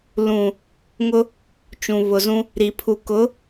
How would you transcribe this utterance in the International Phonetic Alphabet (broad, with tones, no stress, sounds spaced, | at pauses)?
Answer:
l ũ˨ | ŋ ʊ˦ | t͡ʃ ũ˨ β ʊ˨ z ũ˦ | ɾ i˨ pʰ u˨ k ʊ˨˦